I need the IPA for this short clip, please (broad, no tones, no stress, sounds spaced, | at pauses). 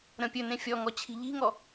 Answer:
ɾ ə̃ pʲ ɵ n ẽ fʲ ɔ ŋ ɔ t͡ɕʰ i̤ ʎ i̤ ŋ ɔ